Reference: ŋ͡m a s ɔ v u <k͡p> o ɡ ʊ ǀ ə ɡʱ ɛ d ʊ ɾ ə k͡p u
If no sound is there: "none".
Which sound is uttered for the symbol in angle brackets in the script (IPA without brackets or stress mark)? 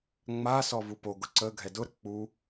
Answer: p